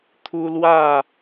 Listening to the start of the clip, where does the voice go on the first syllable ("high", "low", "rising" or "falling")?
high